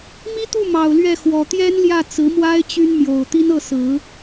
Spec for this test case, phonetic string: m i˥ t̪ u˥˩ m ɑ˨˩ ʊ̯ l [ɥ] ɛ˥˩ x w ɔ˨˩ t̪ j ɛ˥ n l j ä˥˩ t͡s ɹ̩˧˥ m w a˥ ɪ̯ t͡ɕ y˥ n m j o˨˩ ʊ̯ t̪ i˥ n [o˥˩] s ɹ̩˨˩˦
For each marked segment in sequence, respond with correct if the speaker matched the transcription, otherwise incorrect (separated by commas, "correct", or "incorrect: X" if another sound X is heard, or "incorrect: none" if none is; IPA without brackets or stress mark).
correct, incorrect: ɤ˥˩